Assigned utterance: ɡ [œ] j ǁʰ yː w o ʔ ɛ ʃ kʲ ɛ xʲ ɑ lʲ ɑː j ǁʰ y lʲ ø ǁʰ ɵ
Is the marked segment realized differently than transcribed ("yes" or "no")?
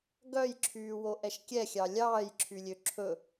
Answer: no